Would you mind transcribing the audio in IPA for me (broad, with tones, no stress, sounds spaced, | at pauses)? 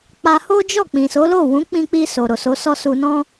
k͡p a˧ h o˦ d͡ʒ ɔ˦˨ k͡p ĩ˨ s o˨˦ l o˦˨ w ũ˨˦ k͡p ĩ˧ k͡p i˧ s o˨ ɾ o˨ s o˨˦ s ɔ˦ s u˧ n ɔ̃˦